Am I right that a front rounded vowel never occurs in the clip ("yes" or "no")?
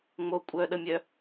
no